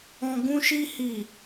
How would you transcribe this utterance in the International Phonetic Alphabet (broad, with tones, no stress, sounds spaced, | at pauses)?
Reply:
ɔ̃˨ ɡ ũ˧ ʃ i˧ h i˨